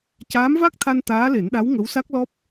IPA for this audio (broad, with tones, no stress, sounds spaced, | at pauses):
c aː˧˥ m v a˦˥ k̚ t̪ʰ a˧ n t̪ aː˧˥ l e˨˩˦ n ɗ a˧˥ w ŋ ə˧˥ w s a˦˥ k̚ l ɔ˦˥ p̚